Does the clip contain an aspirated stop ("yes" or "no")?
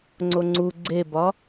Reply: no